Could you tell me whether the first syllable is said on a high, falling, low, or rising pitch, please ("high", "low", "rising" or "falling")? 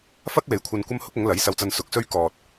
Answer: high